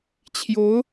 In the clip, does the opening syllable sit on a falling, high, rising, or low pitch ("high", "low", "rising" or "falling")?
rising